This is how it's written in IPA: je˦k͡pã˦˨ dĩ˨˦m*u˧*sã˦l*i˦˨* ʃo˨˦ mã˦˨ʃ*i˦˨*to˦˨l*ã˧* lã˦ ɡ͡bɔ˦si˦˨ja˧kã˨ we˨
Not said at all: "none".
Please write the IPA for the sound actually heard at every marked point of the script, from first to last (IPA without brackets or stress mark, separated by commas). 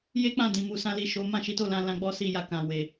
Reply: u˧, i˦˨, i˨˦, ã˧